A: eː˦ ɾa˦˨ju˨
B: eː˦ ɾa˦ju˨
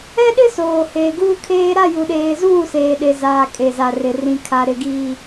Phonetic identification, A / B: A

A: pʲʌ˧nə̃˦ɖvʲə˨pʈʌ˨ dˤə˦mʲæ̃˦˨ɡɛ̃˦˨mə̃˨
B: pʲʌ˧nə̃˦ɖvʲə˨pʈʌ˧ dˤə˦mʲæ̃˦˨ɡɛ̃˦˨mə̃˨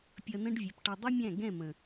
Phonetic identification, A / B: B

